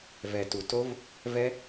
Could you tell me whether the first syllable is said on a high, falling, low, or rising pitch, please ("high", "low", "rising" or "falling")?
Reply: low